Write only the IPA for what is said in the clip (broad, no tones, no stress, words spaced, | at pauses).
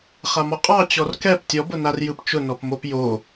χamɔqʼɑ t͡ɕɔrkɛp tʲɔbʊnarjɯp t͡ʃʊnɔpmop jo